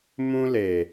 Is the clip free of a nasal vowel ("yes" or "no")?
no